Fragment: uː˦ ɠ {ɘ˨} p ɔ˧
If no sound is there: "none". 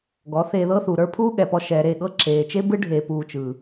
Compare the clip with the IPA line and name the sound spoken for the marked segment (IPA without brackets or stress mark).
ɛ˨